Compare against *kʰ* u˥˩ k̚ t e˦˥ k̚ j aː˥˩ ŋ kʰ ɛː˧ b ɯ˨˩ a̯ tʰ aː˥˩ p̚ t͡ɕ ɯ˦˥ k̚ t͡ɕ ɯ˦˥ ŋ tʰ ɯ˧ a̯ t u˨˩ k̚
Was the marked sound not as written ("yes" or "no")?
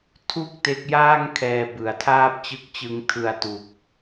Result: yes